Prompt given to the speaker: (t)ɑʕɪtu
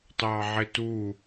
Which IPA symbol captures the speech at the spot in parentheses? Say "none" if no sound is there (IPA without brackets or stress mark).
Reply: t